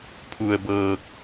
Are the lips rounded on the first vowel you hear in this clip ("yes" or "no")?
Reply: yes